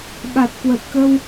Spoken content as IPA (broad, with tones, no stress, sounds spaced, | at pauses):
ɓ a˨˩ t̚ k w ə˨˩ t̚ k ə˧ w